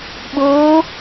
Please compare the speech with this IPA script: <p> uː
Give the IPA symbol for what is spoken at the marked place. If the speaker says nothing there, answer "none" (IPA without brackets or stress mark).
ɓ